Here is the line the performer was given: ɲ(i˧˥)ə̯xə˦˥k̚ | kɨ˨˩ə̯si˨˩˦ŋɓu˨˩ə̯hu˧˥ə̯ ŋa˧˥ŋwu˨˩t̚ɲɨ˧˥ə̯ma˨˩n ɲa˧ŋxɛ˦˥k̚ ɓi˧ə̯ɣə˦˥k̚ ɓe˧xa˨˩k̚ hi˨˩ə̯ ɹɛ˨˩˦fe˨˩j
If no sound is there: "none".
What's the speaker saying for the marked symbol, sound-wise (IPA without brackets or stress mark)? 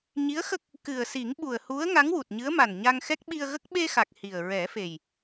i˧˥